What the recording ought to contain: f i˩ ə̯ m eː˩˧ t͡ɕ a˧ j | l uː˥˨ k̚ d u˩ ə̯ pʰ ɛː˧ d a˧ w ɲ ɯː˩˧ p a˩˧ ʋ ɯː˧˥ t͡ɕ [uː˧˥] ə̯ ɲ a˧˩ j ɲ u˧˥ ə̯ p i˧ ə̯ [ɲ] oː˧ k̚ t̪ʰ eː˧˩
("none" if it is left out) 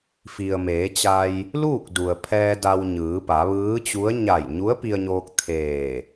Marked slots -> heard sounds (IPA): u˧˥, ɲ

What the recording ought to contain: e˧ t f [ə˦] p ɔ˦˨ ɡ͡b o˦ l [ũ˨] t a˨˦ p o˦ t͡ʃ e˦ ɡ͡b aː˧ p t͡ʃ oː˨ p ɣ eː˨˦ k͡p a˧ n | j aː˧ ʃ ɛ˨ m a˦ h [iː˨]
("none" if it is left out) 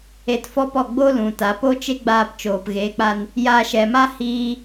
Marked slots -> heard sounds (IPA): ɔ˦, ũ˨, iː˧

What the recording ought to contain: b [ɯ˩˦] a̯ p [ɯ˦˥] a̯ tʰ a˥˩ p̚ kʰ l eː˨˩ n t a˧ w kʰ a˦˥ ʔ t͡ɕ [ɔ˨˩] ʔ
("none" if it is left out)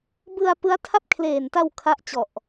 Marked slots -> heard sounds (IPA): ɯ˧, ɯ˦˥, ɔ˨˩

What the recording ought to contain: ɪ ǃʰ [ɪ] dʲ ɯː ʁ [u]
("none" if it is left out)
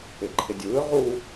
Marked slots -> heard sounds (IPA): ɪ, u

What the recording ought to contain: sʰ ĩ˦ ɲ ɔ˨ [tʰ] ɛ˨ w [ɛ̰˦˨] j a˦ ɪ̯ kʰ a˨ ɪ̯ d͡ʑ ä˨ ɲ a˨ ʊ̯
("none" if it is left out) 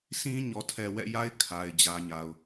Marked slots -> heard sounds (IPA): tʰ, ɛ̰˦˨

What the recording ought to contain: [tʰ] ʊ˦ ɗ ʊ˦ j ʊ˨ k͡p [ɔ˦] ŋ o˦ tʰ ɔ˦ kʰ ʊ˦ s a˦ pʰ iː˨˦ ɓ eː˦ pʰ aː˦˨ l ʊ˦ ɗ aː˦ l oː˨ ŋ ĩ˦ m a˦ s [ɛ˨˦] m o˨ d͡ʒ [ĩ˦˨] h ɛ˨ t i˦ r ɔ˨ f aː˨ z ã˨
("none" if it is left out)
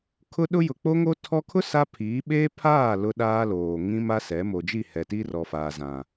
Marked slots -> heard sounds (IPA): kʰ, o˦, ɛ˨˦, i˦˨

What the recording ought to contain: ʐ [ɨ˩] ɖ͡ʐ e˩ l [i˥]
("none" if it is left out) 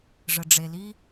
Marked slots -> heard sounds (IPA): ə˩, i˥

